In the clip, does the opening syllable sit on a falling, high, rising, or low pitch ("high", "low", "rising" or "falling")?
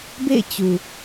falling